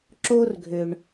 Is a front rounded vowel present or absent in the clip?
present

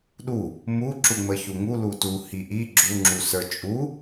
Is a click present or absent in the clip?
present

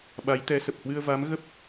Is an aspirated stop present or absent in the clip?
absent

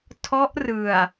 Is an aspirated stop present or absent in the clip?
present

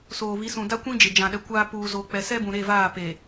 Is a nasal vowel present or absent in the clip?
present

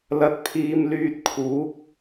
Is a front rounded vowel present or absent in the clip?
present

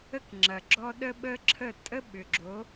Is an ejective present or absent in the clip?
present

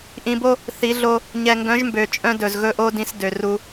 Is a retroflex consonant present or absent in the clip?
absent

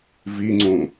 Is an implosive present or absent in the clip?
absent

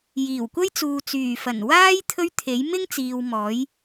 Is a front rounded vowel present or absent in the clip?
present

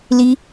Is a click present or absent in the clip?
absent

